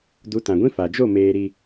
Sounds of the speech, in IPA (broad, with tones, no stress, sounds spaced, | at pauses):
d u˨˦ t ã˨ ɡʷ ĩ˦ f a˨ d͡ʒ o˦˨ m eː˨ ɾ i˨